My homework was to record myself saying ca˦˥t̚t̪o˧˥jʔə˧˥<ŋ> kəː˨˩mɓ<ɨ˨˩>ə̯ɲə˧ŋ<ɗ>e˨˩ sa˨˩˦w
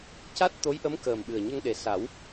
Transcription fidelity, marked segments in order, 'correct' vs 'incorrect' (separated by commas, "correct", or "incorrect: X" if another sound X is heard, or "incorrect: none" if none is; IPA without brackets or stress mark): incorrect: m, correct, correct